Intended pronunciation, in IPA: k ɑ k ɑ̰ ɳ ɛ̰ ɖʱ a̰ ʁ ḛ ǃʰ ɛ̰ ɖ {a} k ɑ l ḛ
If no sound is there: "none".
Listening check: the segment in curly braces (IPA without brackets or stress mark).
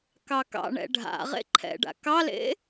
a̰